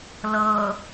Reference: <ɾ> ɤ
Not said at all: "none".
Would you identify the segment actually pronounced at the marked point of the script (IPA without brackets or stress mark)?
l